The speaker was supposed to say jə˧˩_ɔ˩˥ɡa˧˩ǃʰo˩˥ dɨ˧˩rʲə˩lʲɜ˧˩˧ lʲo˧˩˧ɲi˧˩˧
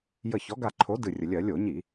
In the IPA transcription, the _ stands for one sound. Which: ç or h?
ç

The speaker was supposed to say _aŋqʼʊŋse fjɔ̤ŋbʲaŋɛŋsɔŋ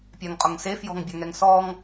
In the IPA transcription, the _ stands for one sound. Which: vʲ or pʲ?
pʲ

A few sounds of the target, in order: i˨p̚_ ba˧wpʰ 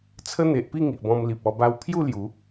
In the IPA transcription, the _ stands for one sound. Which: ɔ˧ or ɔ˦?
ɔ˧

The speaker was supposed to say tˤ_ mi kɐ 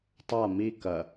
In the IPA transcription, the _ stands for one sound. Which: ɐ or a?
a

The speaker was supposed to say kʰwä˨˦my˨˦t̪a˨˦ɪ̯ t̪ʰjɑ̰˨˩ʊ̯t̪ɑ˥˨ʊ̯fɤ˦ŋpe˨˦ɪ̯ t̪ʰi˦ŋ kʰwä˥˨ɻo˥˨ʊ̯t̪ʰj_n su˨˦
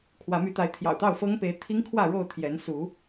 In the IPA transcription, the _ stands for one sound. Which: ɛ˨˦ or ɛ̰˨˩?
ɛ˨˦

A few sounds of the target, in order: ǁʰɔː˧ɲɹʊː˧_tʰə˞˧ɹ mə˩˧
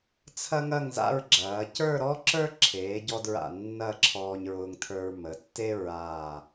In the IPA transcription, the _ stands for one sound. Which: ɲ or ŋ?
ŋ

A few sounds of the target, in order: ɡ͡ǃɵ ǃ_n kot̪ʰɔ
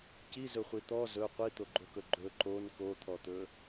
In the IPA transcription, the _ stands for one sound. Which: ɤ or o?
o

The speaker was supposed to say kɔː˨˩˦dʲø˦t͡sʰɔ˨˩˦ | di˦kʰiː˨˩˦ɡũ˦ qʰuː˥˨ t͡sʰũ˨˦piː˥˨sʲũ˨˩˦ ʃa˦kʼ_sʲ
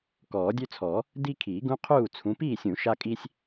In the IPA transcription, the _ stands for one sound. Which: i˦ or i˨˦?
i˦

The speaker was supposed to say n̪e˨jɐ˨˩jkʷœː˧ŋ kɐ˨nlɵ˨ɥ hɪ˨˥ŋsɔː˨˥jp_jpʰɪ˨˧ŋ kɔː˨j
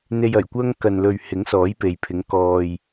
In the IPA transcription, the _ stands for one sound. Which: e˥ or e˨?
e˨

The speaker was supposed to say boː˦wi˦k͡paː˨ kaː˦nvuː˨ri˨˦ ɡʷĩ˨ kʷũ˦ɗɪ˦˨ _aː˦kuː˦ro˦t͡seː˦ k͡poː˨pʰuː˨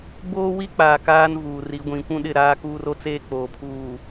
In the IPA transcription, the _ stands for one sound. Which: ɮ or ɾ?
ɾ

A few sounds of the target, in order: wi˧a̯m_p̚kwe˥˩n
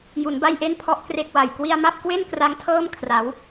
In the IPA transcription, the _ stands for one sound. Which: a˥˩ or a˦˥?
a˥˩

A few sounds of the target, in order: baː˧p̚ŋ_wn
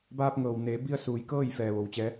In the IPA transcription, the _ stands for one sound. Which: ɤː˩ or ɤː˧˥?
ɤː˩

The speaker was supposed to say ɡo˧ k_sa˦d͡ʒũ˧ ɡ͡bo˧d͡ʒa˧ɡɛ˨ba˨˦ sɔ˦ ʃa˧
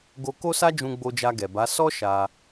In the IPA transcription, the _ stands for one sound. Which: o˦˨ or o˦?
o˦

